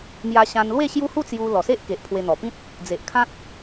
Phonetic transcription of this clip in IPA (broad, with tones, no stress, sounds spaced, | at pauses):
m j a˧ ɕ ã˧ n l w e˥˧ ɕ j u˦ h u˥˧ t͡s j u˧ l ɔ˨˩ s e˦ ʔ k e˨ ʔ pʰ w e˧ n̪ ɔ˨˩ p ĩ˦ t̚ | d͡z e˨ ʔ kʰ ã˦ t̚